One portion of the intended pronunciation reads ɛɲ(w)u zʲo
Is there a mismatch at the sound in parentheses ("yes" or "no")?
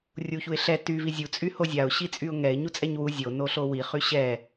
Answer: no